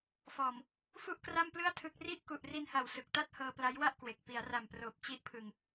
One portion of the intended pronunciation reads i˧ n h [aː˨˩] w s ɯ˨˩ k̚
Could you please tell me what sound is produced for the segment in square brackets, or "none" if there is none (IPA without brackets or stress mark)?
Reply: a˨˩